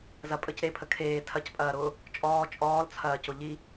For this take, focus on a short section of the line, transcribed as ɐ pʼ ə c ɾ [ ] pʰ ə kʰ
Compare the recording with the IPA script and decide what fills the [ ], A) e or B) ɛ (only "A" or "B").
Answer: A